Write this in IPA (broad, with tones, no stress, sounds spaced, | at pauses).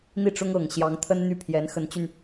n̪ i˥˩ ʈ͡ʂ ʊ˥ ŋ ɤ˨˩ ŋ ɕ j ɑ˧˥ ŋ t̪ʰ ə˥ n n̪ y˥˩ pʰ j ɛ˧˥ n x ə˧˥ n t͡ɕ y˧ n